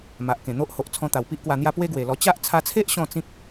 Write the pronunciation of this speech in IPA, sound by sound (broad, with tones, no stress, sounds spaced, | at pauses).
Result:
m a˨ ʔ k ẽ˨˩ n̪ o˦ ʔ h o˨ ʔ t͡sʰ ɔ̃˧ t̪ a˨˩ w p i˦ ʔ k w a˧ n̪ j a˦ p w e˦ ɡ w e˨˩ l ɔ˧ t͡ɕ a˦ ʔ t͡sʰ a˧ t͡sʰ e˦ ʔ ɕ ɔ̃˥˧ t͡s ĩ˦ k̚